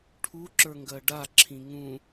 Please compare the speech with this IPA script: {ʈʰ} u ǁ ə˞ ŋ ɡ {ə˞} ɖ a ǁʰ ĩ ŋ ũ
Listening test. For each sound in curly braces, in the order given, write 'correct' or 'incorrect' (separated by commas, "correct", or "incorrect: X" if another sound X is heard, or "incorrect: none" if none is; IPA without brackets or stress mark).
correct, incorrect: ɜ